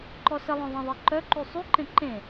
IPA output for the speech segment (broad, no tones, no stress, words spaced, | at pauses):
ǃɔsəlˠœ̃ ðˤẽðˤeǃœǃy sˤyǃẽ ǃẽ